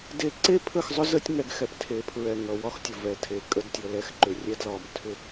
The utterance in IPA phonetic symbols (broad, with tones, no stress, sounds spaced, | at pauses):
d e˧ ǀ e˦ pʰ ə˦˨ x zˤ ʏ˦ z ə˦ tʲ ŋ ɛ˧ ɡ x ɛ˧ p tʰ e˨˦ pʰ ɹ ɛ˨ ŋ ʌ˨ w ɒ˦ x tʲ ə˨ v ɛ˨ tʰ e˨ kʼ ə˧ d tʲ ʌ˨ l ɛ˧ x ǃ ʏ˨ rʲ ɛ˧ d l ɒ˨ m tʰ ʏ˧